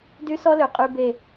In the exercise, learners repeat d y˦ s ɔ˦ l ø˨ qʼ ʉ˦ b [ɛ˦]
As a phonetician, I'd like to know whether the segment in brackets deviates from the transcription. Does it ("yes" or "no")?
yes